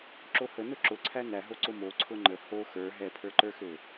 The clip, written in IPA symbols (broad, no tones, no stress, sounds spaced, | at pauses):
ǁ o h ə n ʊ ǁ ʊ ǀʰ æ n æ ɦ o ǀ ʊ m o ǀʰ ʊ ŋ͡ǃ ə h o x ə˞ ɦ ɛ pʰ ə˞ ǃ ə˞ x ø